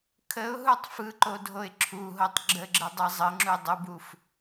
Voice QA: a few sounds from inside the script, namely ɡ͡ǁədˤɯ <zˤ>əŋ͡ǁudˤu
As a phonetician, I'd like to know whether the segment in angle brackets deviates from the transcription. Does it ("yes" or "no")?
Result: no